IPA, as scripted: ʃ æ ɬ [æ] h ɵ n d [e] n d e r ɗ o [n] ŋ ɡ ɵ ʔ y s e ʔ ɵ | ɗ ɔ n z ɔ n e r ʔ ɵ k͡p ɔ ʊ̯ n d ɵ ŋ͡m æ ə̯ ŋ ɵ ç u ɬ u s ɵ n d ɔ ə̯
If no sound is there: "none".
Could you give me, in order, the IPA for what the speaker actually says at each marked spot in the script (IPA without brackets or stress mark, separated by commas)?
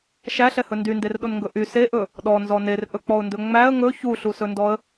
ɛ, y, n